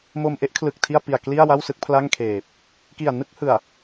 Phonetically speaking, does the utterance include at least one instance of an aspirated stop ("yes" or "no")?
yes